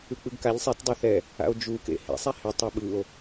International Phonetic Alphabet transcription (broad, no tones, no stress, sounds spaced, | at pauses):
ɯ k͡p ɯ ɡ k a ʎ sˤ e t dˤ a θ ɛ | a̰ o̯ d͡ʒ u k ḛ h ḛ sˤ ɛ h ɪ tˤ a ɓ ɯ o̯